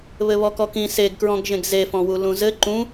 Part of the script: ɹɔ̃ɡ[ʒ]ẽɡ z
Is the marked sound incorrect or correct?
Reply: correct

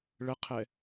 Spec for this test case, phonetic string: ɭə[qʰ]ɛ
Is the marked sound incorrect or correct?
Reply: correct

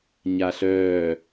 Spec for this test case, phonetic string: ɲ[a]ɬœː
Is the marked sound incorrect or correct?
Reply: correct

